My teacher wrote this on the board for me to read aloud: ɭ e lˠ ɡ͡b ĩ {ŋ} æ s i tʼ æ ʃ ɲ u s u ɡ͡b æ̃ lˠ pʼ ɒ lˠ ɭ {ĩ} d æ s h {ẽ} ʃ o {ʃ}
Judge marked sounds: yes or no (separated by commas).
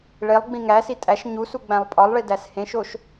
yes, no, yes, yes